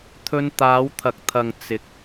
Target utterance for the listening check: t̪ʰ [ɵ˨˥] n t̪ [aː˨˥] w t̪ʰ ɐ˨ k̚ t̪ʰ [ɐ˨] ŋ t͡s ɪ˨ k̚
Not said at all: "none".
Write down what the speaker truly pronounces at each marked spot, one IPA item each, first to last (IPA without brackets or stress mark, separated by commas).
ɵ˧, aː˨˧, ɐ˨